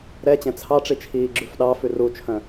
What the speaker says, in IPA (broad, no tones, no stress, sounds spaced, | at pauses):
ɾ ɛ t͡ɕ ɛ̃ t͡sʰ ɑ ʈ͡ʂ i t͡ʃʰ iː ɡ͡ǁ ʉ f ɗ ɑ f ʉ r u t͡ʃʰ œ̃